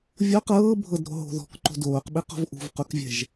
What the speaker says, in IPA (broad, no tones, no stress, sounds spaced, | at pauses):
vʲ o q ɤː bʱ ɤ d ɾ o̤ ɦ o̤ ð ɔ̤ k ǃ o̤ d oː q ɓ i q ɔ̤ v ʔ ṳ v q u k vʲ ɛ̤ ʒ